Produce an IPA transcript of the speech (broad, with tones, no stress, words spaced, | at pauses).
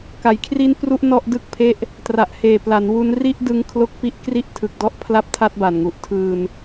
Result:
ka˩˦jkʰri˦˥n pru˥˩ʔnɔ˥˩ʔ dɯ˥˩k̚ pʰe˥˩ʔ | tra˨˩ʔheː˨˩pla˩˦nwu˦˥n ri˥˩ʔdɯ˦˥ŋ kʰlo˦˥k̚ pi˦˥ʔ kri˦˥ʔ tʰɯ˨˩k̚dɔ˦˥ʔ pʰla˥˩p̚tʰa˥˩t̚ba˨˩nŋu˨˩ʔ tʰɯː˧n